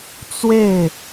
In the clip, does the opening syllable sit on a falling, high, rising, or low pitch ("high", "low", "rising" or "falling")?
falling